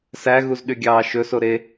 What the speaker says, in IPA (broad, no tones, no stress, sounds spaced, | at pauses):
s æ ɣ u z ɗ y ɡʲ ɑː ʃ ɵ s o ɾ e